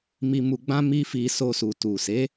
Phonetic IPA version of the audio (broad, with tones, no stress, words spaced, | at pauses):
mi˧mu˧ɡ͡bã˦ mi˦fi˧ so˧su˨ tu˨se˨˦